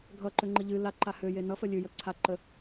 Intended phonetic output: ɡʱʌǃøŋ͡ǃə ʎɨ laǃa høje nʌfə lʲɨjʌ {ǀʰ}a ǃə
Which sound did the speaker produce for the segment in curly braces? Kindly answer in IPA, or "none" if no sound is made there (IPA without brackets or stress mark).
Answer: ǀʰ